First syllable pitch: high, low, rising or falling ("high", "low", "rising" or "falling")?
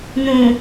low